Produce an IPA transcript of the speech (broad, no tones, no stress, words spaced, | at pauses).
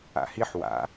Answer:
a̰hiħ wa̰